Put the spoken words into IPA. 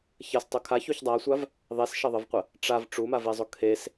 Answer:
ç ɐ s tˤ o kʰ a ç u ç dˤ a sʷ a v | ðˤ e s ʃ ɐ ðˤ ə v qʷ ə | ʈ͡ʂ a v ʈ͡ʂ u m a v e zˤ o kʰ e s

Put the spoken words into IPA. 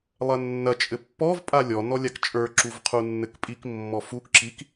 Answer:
lˠ ɐ nː ɐ t͡ʃʼ ɘ pː ɔ v pʼ a lʲ ɔ n ɔ lʲ a k t͡ʃʼ ə˞ ǁ u v qʰ u nː ɘ k pʼ i k mː ɔ f u k ǁ i k

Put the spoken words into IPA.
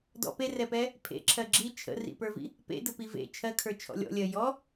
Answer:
d ɔ̰ p e r ɛ p ɛ | pʰ ḛ ǁʰ ɜ ɡ͡ǁ i t͡ʃʰ ə̰ r ḭ p ə˞ v ḭ | p ḛ d ə p i v ḛ t͡ʃʰ ɜ kʰ ə˞ t͡ʃʰ ɔ̰ lʲ ɔ̰ lʲ ɜ j ɔ

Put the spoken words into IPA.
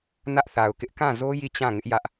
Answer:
n ä˦ ʔ θ a˨ ʊ̯ k ɪ˦ ʔ k ã˦˨ z o˦ j i˦˨ t͡ɕ ã˦˨ ŋ ɪ˦ ʔ j ä˦ ʔ

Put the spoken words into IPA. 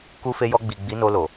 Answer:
k u˧ f e˧ j ɔ˧ ɡ͡b i˨ ɡ͡b i˨˦ n o˧ l o˨

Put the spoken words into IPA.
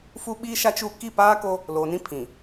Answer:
f u˦ ɓ iː˦ ʃ a˦ t͡ʃ u˦˨ k i˦˨ p aː˦ k o˦ | l oː˨ n ĩ˦ pʰ ĩ˨

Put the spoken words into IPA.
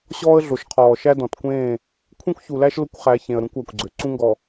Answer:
ɕ ɔː˦ ə̯ ɮ o˨ ʃ qʰ ɔː˨ ʃ æ˦ d ɔ̃˨ t kʷ ẽː˦˨ | kʷʰ ẽ˦ kʷ ç u˨ l æ˦ ʃ l ʊ˦ kʷ χ æ˨˦ ç ẽ˨ ə̯ ɾ ũ˦ kʷ æ˨ kʷ ɡ͡ǀ ø˨ ǀ ũ˦ ŋ ɡ ɔ˨

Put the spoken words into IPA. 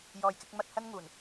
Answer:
j ɔː˨ j k ɪ˧ k̚ m ɐ˧ t̚ h ɐ˥ n ŋ uː˨˩ n

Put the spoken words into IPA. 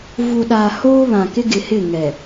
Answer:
v u˨ ɗ aː˨ h oː˦ β ã˨ k ɪ˦ ɡ ɪ˨ h ɪ˦˨ ŋ ɛ˨

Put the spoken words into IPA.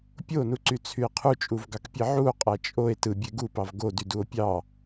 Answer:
pʲ o n u ǀ y t͡sʰ y e̯ qʰ u t͡ʃʼ u v ɡ ɑ k pʲ e ʕ u o̯ qʼ æ t͡ʃʼ o e̯ t ɯ bʲ e ɡ u p ɑ v ɡ o d y d u o̯ pʲ ɑ

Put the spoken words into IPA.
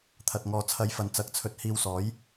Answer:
t̪ʰ ɐ˧ t̚ ŋ ɔː˧ t͡sʰ ɐ˨˥ j f ɐ˨ n t͡s ɐ˨˥ k̚ t͡sʰ ɵ˧ t̚ h iː˧ w s ɔː˨˥ j

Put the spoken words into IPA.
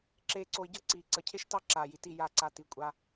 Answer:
ǁ eː˧ ǀ o˧ i̯ ɟ ɤ˦ ǀ iː˨ ǀ ə˨ cʰ e˦ ʃ t ɑ˦ ǁ aː˨ j i˨ t i˦˨ j a˦˨ ǀ a˧ t i˨ kʷʼ a˦

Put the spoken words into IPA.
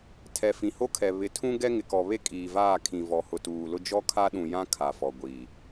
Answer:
tʰ ɛ˨ f ĩ˨ h o˦ kʰ ɛ˨ β ɪ˨ tʰ ũ˦ ɡ ɛ˦ ŋ ɪ˨ k ɔ˨ β e˦ kʼ iː˨ v aː˦˨ kʰ ĩ˨ v ɔ˨ h ʊ˨ t uː˨ l ʊ˦ d͡ʒ ɔ˦ kʰ a˦ ɗ ũ˨ j ã˦ kʰ a˨ f ɔ˨ ɡʷ iː˨

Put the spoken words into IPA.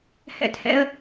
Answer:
h ɛ̰˦ t h ɛ̰˦ ə̯

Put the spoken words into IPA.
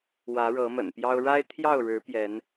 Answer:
w ä˨˦ ɻ ɤ˨˦ m ə̰˨˩ n p j ɑ˦ ʊ̯ ɻ a˦ ɪ̯ t̪ʰ j ɑ˥˨ ʊ̯ ɻ ɻ̩˨˦ p j ɛ˨˦ n

